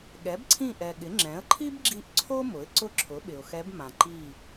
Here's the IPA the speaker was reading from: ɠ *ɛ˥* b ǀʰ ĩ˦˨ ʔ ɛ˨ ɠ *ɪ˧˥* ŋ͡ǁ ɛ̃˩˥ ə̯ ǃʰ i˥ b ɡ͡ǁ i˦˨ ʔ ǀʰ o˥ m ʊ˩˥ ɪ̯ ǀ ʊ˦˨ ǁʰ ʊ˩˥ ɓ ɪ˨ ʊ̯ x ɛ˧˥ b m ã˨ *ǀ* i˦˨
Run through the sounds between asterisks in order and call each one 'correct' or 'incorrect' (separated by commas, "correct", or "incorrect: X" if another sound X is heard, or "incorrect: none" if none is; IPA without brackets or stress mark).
incorrect: ɛ˩˥, incorrect: ɪ˩˥, incorrect: ǃ